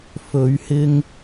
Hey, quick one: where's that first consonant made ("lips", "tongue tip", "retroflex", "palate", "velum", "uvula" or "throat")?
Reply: lips